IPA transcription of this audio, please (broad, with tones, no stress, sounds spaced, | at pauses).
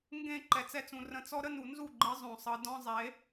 ŋ ɡ ẽ˦˨ ǃ ɛ˨ t͡s ɛ˧ t͡s ũ˨ r ə̃˧ t͡s ɔ˦ ɾ ə˦ n u˨ n z u˦˨ ɡ͡ǃ ɯ˨˦ zˤ õ˨ sˤ ɯ˨ d ɔ̃˦ zˤ e˨˦